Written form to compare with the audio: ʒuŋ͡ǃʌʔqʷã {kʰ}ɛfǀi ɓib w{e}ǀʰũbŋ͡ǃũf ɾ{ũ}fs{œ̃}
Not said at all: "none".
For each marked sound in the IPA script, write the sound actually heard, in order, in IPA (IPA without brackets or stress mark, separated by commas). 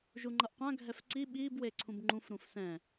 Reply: ɡʱ, e, ũ, ɛ̃